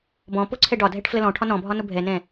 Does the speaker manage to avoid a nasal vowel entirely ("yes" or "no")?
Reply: no